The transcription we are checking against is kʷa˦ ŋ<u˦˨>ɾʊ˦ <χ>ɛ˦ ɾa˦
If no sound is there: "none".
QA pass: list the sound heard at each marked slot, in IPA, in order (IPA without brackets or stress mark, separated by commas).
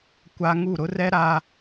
u˦˨, r